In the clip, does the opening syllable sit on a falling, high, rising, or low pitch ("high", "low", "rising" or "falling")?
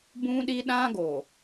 high